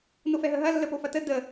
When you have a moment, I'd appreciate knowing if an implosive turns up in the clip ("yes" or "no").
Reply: no